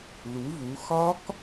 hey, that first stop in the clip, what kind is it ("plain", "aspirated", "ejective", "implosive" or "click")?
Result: plain